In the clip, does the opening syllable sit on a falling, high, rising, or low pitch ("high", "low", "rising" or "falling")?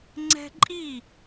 high